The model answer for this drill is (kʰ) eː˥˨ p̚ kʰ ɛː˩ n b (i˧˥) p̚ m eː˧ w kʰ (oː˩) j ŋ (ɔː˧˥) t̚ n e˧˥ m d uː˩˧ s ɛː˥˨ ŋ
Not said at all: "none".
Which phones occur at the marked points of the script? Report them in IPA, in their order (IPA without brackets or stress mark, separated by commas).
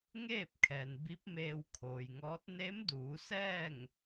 ŋ, i˧˥, oː˩, ɔː˧˥